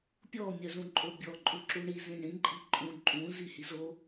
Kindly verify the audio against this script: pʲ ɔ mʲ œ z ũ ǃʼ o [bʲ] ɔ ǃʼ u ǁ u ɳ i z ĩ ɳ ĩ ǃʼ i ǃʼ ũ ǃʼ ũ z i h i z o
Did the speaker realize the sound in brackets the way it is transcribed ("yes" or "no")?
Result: yes